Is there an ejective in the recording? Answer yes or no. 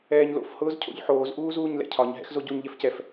no